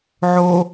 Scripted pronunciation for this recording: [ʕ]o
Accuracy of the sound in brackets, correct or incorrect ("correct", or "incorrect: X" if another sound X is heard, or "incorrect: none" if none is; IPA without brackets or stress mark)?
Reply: correct